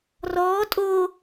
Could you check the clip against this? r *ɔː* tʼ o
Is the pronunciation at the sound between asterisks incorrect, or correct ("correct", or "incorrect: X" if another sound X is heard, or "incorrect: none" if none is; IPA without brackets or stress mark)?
correct